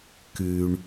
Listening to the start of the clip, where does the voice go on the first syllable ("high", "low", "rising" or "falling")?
low